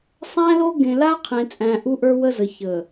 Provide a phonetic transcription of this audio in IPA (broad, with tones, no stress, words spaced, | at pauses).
sˤæ̃˦lo˦ ɡẽ˨la˦ qʰẽ˨t͡sʼæ̃˨ ʔu˦ʔə˞˦wə˦zə˨ çə˨